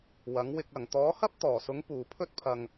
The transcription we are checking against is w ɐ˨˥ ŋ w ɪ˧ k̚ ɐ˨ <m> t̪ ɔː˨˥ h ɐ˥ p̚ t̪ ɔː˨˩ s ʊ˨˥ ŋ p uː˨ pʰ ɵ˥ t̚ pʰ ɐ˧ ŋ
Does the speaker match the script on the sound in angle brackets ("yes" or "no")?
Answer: no